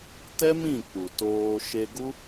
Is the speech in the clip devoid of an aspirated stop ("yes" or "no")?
yes